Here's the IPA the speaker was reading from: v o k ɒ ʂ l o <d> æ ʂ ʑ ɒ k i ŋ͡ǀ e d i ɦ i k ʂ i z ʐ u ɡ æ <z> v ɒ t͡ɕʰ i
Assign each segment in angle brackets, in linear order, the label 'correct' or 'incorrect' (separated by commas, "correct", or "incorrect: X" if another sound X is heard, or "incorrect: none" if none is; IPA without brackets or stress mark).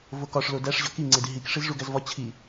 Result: correct, correct